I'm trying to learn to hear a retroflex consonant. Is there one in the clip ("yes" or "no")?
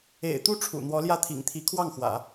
yes